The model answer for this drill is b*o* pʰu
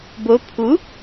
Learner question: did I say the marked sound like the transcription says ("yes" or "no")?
yes